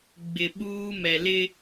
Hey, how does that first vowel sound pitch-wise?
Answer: low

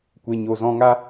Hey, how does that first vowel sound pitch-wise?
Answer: low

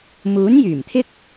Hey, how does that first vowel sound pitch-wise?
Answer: rising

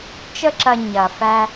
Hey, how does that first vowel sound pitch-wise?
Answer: high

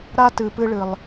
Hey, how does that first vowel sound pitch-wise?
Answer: high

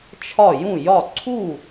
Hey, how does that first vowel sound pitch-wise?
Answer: falling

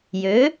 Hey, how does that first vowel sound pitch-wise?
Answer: rising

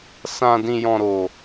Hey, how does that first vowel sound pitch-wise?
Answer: low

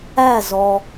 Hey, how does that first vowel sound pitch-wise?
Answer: falling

